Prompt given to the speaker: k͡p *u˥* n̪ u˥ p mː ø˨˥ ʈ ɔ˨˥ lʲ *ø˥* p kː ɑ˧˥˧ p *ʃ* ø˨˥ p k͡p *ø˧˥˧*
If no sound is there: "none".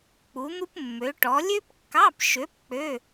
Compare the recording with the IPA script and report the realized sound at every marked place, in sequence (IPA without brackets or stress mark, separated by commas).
u˨˥, ø˥, ʃ, ø˧˥˧